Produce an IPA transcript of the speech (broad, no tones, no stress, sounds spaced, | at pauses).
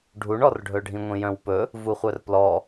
ɖʱ u ɳ ɔ r ɖʱ ɵ ɖʱ ĩ ŋʷ ĩ j œ̃ w p ɵ | v u χʷ œ r p l ɔ